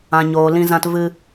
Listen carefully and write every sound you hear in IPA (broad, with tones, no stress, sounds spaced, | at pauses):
ã˨ ɲ oː˨ l ĩ˧ z ã˧ t v ɨ˧